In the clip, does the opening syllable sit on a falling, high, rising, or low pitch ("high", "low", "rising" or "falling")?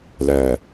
low